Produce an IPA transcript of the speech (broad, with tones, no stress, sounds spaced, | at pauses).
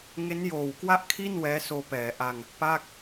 ŋ e˦˥ n j oː˨˩ w k w a˥˩ ʔ kʰ i˥˩ n w ɛː˦˥ s oː˧ p ɛː˩˦ ʔ a˧ ŋ | p a˥˩ k̚